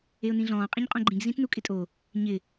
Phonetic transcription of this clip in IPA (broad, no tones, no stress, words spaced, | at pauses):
eʊ̯nĩɮɔ̃ː qʼĩɲqʼõɡ͡ǃĩɡ zĩtnukʼɪtʼo | ɲɪ